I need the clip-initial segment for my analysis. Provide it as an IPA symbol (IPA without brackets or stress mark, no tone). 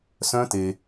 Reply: s